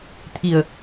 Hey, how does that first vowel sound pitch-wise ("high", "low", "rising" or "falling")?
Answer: low